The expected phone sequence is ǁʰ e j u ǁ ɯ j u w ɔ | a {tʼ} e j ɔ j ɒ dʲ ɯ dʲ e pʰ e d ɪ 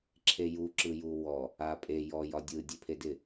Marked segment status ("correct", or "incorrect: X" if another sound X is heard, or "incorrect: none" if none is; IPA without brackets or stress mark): incorrect: pʼ